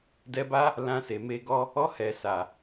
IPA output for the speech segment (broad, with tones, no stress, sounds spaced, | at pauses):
d ɛ˧ b a˦ | l ã˧ s e˨ m e˧ ɡ ɔ˦ | ɔ˧ h ɛ˨ s a˨